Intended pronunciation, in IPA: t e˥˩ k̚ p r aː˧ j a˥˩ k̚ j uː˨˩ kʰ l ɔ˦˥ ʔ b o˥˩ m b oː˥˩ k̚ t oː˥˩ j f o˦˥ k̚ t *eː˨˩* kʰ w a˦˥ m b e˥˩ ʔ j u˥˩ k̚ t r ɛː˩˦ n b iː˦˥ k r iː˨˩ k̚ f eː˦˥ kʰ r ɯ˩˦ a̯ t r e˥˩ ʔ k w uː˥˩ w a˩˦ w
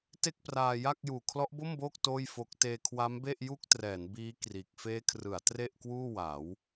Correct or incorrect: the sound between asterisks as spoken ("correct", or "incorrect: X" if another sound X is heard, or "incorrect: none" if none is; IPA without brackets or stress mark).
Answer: incorrect: eː˧